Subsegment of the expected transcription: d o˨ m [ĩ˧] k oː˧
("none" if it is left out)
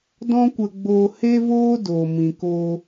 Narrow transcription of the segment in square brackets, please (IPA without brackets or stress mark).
ĩ˨